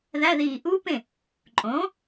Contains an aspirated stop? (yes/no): no